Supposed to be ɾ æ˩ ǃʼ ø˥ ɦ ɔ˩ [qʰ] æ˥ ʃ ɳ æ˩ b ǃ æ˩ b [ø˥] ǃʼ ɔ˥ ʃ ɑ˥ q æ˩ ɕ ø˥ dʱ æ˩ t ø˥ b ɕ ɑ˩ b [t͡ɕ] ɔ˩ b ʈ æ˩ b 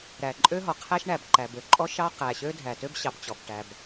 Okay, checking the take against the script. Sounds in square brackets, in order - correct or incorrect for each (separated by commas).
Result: correct, incorrect, correct